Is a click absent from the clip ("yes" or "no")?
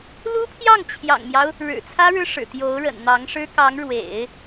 yes